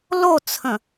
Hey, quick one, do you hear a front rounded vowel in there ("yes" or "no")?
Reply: no